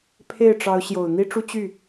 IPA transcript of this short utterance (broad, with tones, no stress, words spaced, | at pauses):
pʰe˥˩ɪ̯ʈ͡ʂɑ˧˥ʊ̯ ɕjo˨˩ʊ̯n̪i˥ʈ͡ʂu˥ t͡ɕy˥˩